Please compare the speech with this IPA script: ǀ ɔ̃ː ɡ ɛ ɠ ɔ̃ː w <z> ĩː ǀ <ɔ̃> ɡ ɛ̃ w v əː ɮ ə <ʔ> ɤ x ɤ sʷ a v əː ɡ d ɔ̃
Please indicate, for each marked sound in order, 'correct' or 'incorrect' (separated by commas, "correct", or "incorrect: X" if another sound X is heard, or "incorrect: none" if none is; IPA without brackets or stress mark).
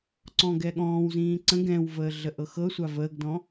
correct, incorrect: ə̃, correct